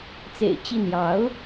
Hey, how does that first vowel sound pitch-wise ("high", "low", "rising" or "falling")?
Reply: low